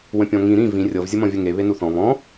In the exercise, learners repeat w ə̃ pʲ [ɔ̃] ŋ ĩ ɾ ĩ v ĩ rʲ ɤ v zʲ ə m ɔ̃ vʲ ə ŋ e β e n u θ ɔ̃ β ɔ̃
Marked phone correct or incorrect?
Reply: correct